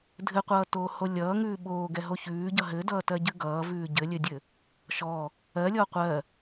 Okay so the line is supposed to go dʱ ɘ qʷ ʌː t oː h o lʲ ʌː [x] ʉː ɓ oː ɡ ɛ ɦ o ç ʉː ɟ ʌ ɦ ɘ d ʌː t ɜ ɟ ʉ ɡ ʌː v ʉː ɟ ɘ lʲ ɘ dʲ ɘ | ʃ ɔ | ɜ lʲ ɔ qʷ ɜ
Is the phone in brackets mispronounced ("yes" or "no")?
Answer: yes